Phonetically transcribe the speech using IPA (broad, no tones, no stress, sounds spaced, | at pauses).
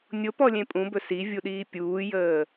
nʲ o p ɔ lʲ ẽ pʼ ũ b ɵ s i vʲ u ɗ iː pʲ uː j əː